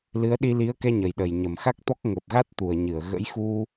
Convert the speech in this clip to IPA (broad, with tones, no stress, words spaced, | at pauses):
lɨ˨˦ə̯ɗi˧li˨˦ə̯kɛ˧ ɲə˨˩jɗə˨˩j ɲə˨˩mxa˦˥k̚t̪ɔ˦˥k̚ ŋə˨˩p̚ɣa˦˥t̚ t̪u˨˩ə̯ɲɨ˧˩ə̯ ɣə̰˧˥jxu˧